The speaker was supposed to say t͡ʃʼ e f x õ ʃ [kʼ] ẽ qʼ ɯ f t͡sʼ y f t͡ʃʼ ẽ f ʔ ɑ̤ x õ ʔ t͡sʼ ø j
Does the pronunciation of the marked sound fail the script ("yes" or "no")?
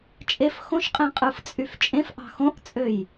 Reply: yes